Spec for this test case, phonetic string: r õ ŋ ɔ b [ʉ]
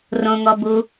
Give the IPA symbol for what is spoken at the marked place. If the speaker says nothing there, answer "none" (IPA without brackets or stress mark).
u